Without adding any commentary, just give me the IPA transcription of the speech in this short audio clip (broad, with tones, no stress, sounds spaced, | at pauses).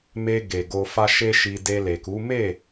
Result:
m e˧ ɡ e˨ ɡ o˧ f a˦ ʃ e˦ ʃ i˧ d e˧ l e˨ k u˨˦ m e˦˨